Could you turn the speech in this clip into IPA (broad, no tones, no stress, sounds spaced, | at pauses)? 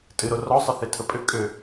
tʼ ɨ ɾ o r ɔ sˤ ə θ e tʰ ə pʼ ʏ kʼ ʏ